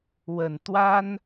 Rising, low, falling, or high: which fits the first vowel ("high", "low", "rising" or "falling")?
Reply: low